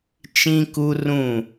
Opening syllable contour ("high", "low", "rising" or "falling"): high